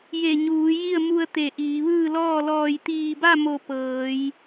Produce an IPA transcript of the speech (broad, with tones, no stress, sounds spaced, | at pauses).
j e˧˩ ɲ uː˩˧ j i˥˨ ə̯ m u˧ ə̯ t̪ e˧˩ ʔ iː˩˧ ʋ ɯː˥˨ l ɔː˥˨ l ɔː˧˩ j t̪ iː˧˩ b a˥˨ m o˧˩ p ɤː˩˧ j